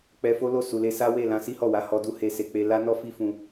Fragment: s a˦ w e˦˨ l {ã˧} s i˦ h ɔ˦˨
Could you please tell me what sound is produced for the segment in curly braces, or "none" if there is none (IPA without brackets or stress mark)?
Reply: ã˧